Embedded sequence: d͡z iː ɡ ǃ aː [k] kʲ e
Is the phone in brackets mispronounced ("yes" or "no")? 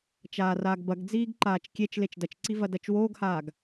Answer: yes